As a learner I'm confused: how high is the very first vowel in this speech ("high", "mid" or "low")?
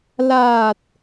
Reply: low